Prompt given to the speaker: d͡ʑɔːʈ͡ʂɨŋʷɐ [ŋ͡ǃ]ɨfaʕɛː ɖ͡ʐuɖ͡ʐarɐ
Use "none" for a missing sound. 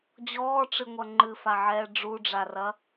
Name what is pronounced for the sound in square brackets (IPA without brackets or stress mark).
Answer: ŋ͡ǃ